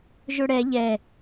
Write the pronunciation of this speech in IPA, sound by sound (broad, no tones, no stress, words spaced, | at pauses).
ʒɵɽɛ ʎɛ